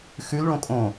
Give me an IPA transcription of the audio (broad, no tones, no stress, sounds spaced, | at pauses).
x ʉ l ɭ õ kʼ õ